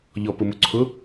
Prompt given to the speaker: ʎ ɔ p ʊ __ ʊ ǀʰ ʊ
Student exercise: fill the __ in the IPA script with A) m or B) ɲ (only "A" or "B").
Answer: A